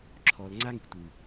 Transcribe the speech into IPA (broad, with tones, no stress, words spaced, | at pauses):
ǁʰɔ˨l ŋ͡ǀa˦ŋi̤˨tʷɨ˨